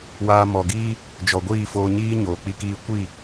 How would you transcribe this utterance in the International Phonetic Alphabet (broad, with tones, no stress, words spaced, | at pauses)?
waː˧mɔ˨ɡiː˦ | d͡ʒɔ˨ɡʷiː˦˨ foː˧ɲiː˦ ɲoː˨k͡pi˦kiː˦ kʷi˦˨